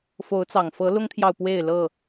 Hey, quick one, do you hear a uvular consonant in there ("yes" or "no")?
no